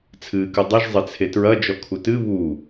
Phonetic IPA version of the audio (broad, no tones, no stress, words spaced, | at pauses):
t͡sʰɨːkɨdˤɨʒ zˤɘt͡sʰetɹɐ d͡ʒɔkʰutɨ βu